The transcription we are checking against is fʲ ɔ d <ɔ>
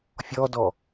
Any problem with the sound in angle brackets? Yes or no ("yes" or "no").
no